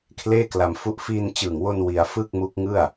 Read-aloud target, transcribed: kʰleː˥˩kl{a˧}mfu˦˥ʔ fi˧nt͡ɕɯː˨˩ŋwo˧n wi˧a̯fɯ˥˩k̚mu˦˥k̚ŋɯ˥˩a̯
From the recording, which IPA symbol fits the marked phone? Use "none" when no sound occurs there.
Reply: a˧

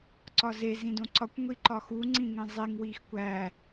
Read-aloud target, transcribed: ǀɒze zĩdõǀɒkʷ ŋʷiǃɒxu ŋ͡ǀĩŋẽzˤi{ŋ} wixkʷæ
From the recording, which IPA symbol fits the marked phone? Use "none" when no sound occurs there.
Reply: ŋ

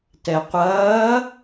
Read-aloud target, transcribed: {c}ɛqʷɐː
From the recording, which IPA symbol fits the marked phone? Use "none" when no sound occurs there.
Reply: t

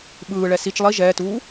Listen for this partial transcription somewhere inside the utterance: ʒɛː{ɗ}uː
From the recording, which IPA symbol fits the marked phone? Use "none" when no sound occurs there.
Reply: t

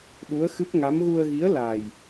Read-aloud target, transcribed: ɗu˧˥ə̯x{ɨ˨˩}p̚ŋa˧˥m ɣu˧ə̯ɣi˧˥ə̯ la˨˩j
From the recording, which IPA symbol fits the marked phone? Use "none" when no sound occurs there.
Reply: ɨ˦˥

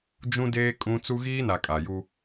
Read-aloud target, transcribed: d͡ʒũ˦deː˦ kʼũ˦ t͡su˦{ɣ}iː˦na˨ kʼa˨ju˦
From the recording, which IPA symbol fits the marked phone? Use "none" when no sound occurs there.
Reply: ɣ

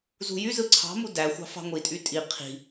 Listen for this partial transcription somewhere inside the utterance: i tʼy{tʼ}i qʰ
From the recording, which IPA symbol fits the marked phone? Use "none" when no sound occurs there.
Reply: tʼ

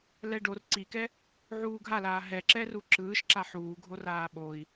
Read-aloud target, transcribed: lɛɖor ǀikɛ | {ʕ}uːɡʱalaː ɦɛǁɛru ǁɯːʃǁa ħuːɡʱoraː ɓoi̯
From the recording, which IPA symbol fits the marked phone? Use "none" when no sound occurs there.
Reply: ʕ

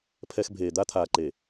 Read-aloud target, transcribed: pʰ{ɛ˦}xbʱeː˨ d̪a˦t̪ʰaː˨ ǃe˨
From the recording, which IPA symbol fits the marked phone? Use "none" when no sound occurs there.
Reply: ɛ˦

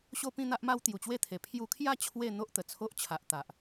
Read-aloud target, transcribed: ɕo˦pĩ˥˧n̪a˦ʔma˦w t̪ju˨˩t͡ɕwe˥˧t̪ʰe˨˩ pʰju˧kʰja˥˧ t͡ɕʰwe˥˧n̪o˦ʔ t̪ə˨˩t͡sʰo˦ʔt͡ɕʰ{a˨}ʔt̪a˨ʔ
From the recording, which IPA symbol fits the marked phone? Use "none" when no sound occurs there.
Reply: a˨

